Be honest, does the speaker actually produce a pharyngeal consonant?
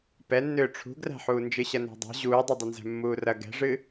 yes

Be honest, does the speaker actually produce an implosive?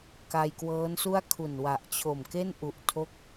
no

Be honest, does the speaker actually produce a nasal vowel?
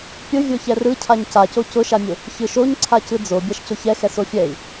no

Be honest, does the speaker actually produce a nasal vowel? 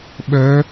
no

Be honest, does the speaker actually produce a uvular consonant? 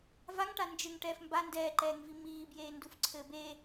no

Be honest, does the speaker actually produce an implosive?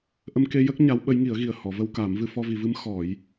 yes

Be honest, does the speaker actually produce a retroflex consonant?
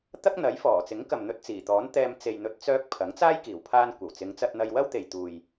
no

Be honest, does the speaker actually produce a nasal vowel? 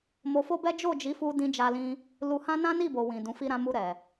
yes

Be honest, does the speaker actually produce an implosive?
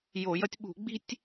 yes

